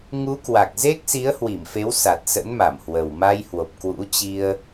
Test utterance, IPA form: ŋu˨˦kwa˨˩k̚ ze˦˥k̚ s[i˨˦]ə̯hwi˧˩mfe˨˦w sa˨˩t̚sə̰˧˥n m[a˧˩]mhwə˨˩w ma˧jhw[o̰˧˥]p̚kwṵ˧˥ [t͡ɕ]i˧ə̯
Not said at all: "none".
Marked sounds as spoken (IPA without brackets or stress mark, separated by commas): i˨˦, a˧˩, o˨˩, t͡ɕ